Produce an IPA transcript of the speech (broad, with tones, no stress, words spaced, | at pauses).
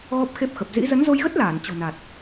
ɣɔ˦˥p̚xe˦˥p̚xə˨˩p̚ zḭ˧˥ zə˨˦nzo˧jɣə˦˥t̚laː˧˩n t͡ɕo̤˨˩na˨˩t̚